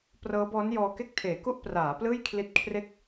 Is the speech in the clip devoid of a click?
yes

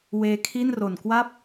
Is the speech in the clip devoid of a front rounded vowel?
yes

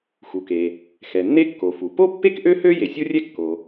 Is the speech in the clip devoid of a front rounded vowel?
no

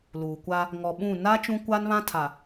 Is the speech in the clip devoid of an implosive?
no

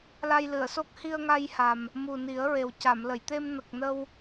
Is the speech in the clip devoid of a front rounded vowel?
yes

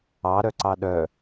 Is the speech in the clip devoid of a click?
no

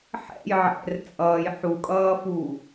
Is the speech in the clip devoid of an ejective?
no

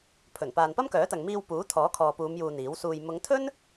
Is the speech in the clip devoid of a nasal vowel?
yes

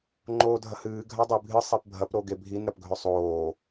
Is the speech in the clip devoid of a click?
no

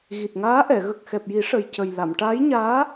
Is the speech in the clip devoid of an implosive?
yes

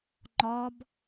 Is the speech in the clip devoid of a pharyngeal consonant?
yes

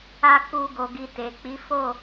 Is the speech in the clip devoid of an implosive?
yes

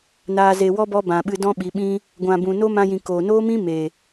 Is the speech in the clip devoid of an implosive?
no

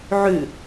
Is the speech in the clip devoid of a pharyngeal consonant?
no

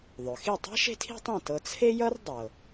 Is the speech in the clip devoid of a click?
yes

